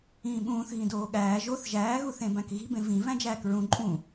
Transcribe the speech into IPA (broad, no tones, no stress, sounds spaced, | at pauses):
ĩː ɓ ũː θ ɣ ĩ d oː ɠ æː ʒ o θ ʒ æː ɣ u θ ẽ b æ̃ k ɣ i̤ b ẽ v ĩ v æ̃ d͡ʒ æː k ɹ ũ ǃʼ ũ